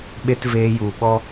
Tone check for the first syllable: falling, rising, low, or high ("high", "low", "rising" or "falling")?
high